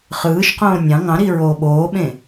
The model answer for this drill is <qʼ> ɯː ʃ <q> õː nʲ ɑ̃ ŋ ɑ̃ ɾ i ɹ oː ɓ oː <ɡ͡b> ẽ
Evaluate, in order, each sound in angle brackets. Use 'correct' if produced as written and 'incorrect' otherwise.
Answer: incorrect, correct, incorrect

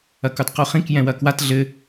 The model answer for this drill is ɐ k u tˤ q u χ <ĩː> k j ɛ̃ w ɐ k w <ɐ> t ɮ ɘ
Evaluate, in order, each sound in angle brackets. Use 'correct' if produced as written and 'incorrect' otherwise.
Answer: incorrect, incorrect

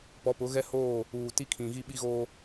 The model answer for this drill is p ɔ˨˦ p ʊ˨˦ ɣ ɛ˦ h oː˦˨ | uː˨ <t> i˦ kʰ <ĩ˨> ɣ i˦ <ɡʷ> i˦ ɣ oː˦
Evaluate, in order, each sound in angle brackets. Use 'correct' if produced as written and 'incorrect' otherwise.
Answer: correct, correct, incorrect

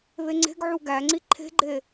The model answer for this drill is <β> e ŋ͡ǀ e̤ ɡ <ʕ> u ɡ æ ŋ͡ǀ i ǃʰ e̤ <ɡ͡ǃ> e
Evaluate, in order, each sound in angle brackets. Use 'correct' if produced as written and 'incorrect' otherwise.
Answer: correct, correct, correct

